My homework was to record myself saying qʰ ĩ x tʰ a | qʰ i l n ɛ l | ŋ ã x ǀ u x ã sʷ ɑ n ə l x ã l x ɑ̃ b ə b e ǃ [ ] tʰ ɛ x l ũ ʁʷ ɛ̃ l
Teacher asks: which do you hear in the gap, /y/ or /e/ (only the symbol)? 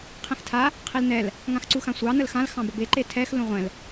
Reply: e